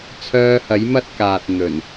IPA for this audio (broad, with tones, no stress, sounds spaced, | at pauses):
t͡sʰ œː˧ h ɐ˨˥ j m ɐ˥ t̚ k aː˨ t̚ n̪ ɵ˨˩ n